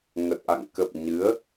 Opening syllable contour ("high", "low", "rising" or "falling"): low